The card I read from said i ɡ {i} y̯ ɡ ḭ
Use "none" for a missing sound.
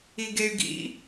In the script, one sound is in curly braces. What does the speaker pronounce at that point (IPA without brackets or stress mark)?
e